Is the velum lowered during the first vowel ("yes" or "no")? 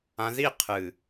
yes